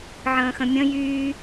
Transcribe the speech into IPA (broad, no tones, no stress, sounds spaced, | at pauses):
ʕ ə̃ː x ə̃ mʲ ə̃ j yː